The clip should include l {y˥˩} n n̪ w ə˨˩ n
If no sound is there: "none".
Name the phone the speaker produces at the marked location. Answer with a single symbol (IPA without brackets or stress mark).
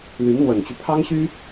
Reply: y˧˥